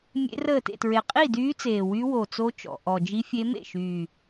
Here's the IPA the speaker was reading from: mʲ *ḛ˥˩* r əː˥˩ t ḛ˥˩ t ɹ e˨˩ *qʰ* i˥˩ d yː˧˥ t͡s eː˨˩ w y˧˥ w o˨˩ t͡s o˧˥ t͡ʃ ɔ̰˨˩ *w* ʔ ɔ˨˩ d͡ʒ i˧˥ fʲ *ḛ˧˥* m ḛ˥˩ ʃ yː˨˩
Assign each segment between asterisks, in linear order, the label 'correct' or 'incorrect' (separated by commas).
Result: incorrect, incorrect, incorrect, incorrect